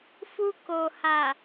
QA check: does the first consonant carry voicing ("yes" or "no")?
no